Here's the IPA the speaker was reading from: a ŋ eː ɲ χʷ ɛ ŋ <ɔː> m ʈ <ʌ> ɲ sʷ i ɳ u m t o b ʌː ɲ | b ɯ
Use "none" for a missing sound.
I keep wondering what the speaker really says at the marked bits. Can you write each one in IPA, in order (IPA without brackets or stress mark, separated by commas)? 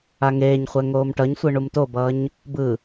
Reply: oː, ʌ